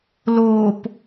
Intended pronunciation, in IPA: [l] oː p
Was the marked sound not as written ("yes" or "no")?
no